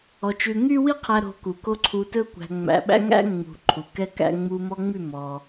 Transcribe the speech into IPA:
ɔ˧ t͡ʃ ʉ˧ ŋ y˦ w i˦ qʰ æ˧ ɾ o̤˧ k u˨ k o˧ ǀʰ u˧ t ɵ˦ kʷ æ̤˧ ŋ͡m æ̰˧ ɓ æ̰˦ ŋ æ̰˦ ŋ͡m ṳ˨ ǃʰ u˨ k ɛ˧ k æ̰˧ ŋ͡m u˧ m ɔ˧ ŋ͡m y˦˨ m ɔ˧

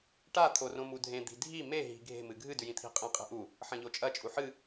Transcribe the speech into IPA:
ʈ a t̪ʰ o r õ m u dʱ ẽ d̪ i̤ dʱ i m e ɦ i̤ ɡʱ e̤ m ɨ ɡʱ ɨ d ʉ j ĩ t̪ʰ i̤ qʼ ĩ qʼ e̤ ʔ u | ħ ɐ̃ ʎ o t͡ʃʼ ɐ t͡ʃʼ u ħ ɨ

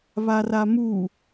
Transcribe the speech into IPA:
β a r a m u

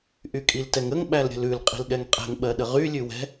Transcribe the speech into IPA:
ʔ y kʼ i l t ɛ ŋ ə ŋ ɓ æ l ɾʲ ə̤ l ʉ l qʼ i̤ l ɠ ɛ ŋ qʼ ɛ̤ ŋ ɓ ɜ ɗ ə ʁ y lʲ ʉ w ɛ̤

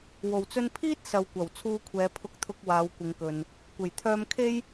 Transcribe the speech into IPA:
w o˨˩ w t͡s ɵ˧ n pʰ iː˥ t̚ s ɐ˨ w kʷ ɐ˨˩ w t͡sʰ uː˧ kʷʰ ɛː˨˧ pʰ ʊ˧ k̚ t̪ʰ ʊ˧ k̚ w aː˨˧ w kʷ ɪ˨˧ ŋ k ɵ˨ n | kʷ e˨˩ j t̪ʰ œː˧ m kʰ e˥ j

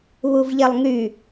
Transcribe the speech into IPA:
β u v ʎ e lˠ ŋ y

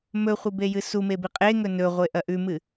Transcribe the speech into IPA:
m ɵ χʷ ɨ b e j ɨ s u m e b i qʼ e ŋ ɵ n ɵ ʁʷ e ʔ ɐ ʔ ʉ m ɨ

